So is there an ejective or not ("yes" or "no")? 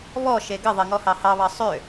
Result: no